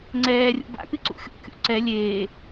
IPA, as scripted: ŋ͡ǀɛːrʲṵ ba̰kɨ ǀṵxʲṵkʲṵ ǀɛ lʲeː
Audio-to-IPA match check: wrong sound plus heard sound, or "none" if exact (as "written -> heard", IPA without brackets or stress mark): none